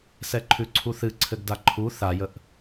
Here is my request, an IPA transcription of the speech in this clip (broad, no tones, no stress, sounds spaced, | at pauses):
s ɛ ǃʰ ʉ ǀʰ u θ ɨ ǀʰ ɘ ɡ d a ǃʰ u θ a j ə ʔ